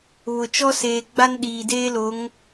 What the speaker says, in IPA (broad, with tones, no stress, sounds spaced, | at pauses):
β ʊ˨ t͡ʃ ɔ˦ s eː˨ ɡ͡b a˦ n ɗ iː˨ d eː˦ l o˨˦ ŋ